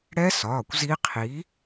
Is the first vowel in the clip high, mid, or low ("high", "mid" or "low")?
mid